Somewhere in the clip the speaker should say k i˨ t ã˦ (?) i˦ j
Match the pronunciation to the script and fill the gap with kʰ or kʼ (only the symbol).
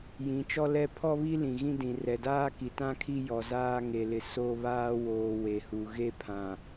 kʰ